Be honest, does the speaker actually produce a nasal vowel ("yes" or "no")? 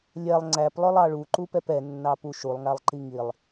no